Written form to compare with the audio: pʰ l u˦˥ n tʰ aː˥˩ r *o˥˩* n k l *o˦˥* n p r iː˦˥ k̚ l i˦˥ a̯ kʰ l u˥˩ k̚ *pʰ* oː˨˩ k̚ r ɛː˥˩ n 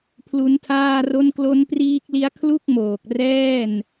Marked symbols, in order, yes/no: yes, yes, no

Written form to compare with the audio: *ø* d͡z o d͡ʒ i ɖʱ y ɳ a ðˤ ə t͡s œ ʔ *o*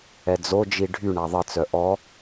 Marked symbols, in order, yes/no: no, no

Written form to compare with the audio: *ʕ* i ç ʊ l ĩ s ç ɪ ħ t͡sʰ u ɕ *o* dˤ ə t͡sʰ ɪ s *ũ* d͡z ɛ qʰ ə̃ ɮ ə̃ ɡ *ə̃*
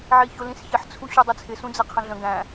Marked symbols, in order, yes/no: yes, no, yes, no

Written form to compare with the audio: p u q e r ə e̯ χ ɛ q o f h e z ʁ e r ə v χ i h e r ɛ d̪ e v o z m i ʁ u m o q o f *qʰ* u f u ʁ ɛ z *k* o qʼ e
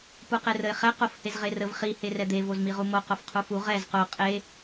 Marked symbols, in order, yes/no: yes, no

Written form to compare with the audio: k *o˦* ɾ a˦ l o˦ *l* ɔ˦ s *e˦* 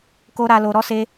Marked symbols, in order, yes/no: yes, no, yes

